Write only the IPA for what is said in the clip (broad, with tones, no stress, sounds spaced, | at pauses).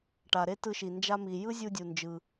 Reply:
ʈ a˩ ɾ e˥ t ɯ˧ ʃ i˩ n d͡ʒ a˧ m i˩ j ɯ˥ zʲ u˧ dʲ u˩ n d͡ʒ ɯ˩